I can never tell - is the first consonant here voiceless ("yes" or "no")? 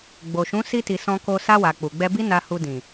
no